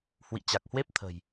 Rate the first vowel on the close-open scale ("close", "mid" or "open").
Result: close